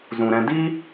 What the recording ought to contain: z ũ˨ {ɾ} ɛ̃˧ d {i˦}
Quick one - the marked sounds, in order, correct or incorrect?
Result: correct, correct

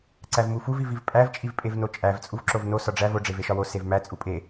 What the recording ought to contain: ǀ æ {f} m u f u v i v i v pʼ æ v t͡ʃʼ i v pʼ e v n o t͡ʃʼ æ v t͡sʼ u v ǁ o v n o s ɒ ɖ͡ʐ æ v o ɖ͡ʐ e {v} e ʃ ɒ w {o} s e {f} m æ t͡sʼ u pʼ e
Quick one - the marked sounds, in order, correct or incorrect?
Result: incorrect: v, correct, correct, incorrect: v

